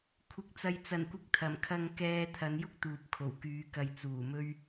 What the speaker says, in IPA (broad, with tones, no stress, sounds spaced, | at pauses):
kʷʰ ɪ˨˥ k̚ t͡s ɐ˨ j t͡s ɐ˨˩ n kʷ ɪ˧ k̚ t̪ʰ ɐ˨˩ m kʰ ɐ˧ ŋ k ɛː˧ t̪ʰ ɐ˨˧ n j ʊ˥ k̚ t̪ uː˨ p̚ kʰ o˨˩ w k yː˨˧ k ɐ˨ j t͡s uː˨˩ m ɵ˥ ɥ